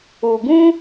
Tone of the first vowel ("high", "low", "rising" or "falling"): low